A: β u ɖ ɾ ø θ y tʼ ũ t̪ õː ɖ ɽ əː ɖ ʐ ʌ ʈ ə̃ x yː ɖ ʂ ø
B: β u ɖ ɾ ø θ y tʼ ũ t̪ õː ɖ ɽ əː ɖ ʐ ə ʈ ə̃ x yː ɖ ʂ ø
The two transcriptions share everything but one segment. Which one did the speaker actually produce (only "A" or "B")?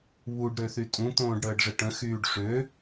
B